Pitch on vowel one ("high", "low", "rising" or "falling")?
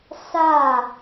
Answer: falling